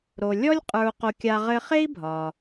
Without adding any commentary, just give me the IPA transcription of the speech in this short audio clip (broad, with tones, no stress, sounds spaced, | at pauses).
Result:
ɾ o˩ lʲ ɔ˥ lʲ qʼ ə˞˧ u̯ q o˧ kʲ a˧ ʁ ɘ˧ χ e˥ i̯ bʱ ɒ˩